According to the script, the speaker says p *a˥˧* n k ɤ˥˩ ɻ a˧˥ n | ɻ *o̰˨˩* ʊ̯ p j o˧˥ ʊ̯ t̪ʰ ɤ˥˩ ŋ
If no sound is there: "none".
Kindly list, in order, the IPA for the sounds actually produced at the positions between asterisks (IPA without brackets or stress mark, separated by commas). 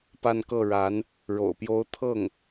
a˥˧, o̰˨˩